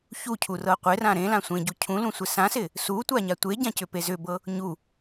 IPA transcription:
ç u cʰ u r ɤ qʷ ɪ r ã ɾ ẽ l ã sʷ ẽ ɟ u cʰ ũ l ũ sʷ ɪ s ã s ɪ | s u tʷ a ɲ a tʷ e ɟ ã c ʏ p e z ʏ b ɤ | ɲ u

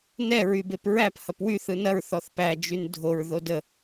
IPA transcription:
n ɛ ɹ y b e p ɹ æ p h ɐ p w y θ ɯ n ɐ ɹ θ ɔ θ p æ d͡ʒ y n dʱ o ɹ ð o d ə

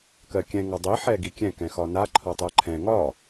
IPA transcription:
k ɜ kʲ ɛ̃ ŋ ɒ dˤ i ħ ɛ ɡ i kʲ ɛ̃ k ɛ̃ x ɒ n a ǃʰ ɒ tˤ ɜ ǃʰ ɛ̃ ŋ ɒ

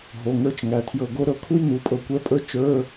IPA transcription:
ɦ o˩˧˩ ŋ ə˞˧˥ t͡ʃ ŋ æ˩˧˩ tʰ j ɤ˧˩ ɡ o˧˥ ɾ ɤ˧˥ kʰ u˥ j n u˩˧˩ pʼ ɤ˧˩ kʷ ɛ˧˥ pʼ ə˞˥ t͡ʃ ə˞˧˥˧

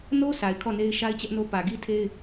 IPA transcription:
n o˦ sʰ a˨ ɪ̯ kʰ ɔ˦˨ n e˦ ɪ̯ ʃ a˦ ɪ̯ t͡ɕ ɛ˦ ʔ n o˦ p ä˨ ɡ i˦ tʰ e˦ ɪ̯

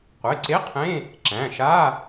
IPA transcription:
qʷ e˩˧˩ ǀ e˧˥˧ qʰ ẽ˧˥˧ | ǁ æ̃˩˧˩ ʃ a˧˥˧

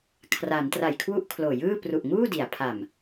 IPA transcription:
kʰ r a˩˦ n t r a˨˩ j kʰ w u˥˩ ʔ kʰ l oː˨˩ j ɯː˥˩ p r u˨˩ ʔ ŋ uː˥˩ d i˩˦ a̯ pʰ a˨˩ m

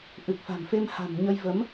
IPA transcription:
ʔ ɨ˨˩ k̚ f a̤˨˩ m f e˧ m h a̤˨˩ m ɲ ə˧ j v ə˨˦ m

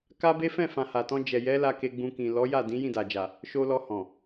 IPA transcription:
k a˦ b e˦ f ɛ̃˦˨ f ã˨ h a˨ t ɔ̃˧ d͡ʒ ɛ˨ j ɛ˨˦ l a˧ k e˧ ɡ͡b ũ˧ k ĩ˨ l ɔ˨˦ j a˦˨ d ĩ˨˦ j ĩ˦˨ d a˨ d͡ʒ a˨ | ʃ o˧ l ɔ˧ h ɔ̃˨

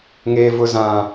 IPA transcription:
ŋ eː˨ v ʊ˨ z ã˨

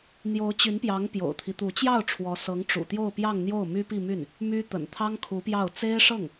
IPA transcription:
n̪ j o˧˥ ʊ̯ t͡ɕ y˧˥ n p j ɑ˧˥ ŋ p j o̰˨˩ ʊ̯ t̪ʰ i˦ t̪ u˧˥ t͡ɕ j ɑ˥˩ ʊ̯ ʈ͡ʂʰ w ɔ˧˥ s ɤ˧˥ ŋ ʈ͡ʂ ṵ˨˩ t̪ j o˥˧ ʊ̯ p j ɑ˥˧ ŋ n̪ j o˥˩ ʊ̯ m y˥ p i˥˧ m y˥˩ n | m y˥ t̪ ə̰˨˩ n t̪ʰ ɑ˥ ŋ kʰ u˧˥ p j ɑ˥˩ ʊ̯ t͡s e˥ ɪ̯ ʂ ɤ˥˩ ŋ

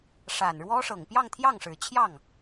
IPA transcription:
ʂ a˨˩ n ɻ w ɔ˥ ʂ ɤ˨˩ ŋ p j ɑ˥˧ ŋ t̪ʰ j ɑ˥˩ ŋ ʂ ɻ̩˨˩ t͡ɕʰ j ɑ˥˩ ŋ

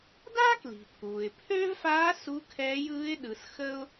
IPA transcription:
d aː˥ k l i̤˩ pʰ uː˩ ɪ̯ pʰ øː˥ v f aː˧˥ s u˧˥ kʰ ɛː˧˥ j ɯː˧˥ ɪ̯ ɗ ɯ˩˧ s x ə˥ ʊ̯

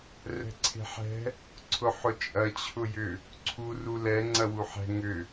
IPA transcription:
r ɛ̤ ǀʰ e̤ ħ ɛ̤ | ǀʰ ʊ ħ ʊ t͡ʃʼ ɐ t͡ɕʰ ʊ j ʏ | ǀʰ u r u l ɛ ŋ͡ǀ ɐ w u ħ ɛ̤ ŋ ʏ

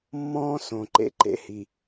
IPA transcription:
mː ɔ̃ː˦ s õ˨ ǃ ḛ˨ ǃ ḛ˨ h i˨

